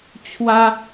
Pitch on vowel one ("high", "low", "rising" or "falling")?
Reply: high